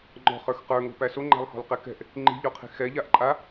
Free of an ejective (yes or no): no